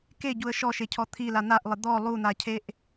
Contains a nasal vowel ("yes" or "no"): no